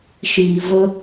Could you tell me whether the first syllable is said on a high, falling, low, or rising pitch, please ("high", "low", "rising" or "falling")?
low